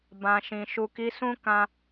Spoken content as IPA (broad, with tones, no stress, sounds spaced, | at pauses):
b ã˨ ʃ ĩ˨ ʃ u˨ k i˨˦ s ũ˦ k ã˧